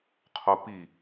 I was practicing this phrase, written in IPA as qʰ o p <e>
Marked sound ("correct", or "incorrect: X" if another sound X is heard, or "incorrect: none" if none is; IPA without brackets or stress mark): incorrect: i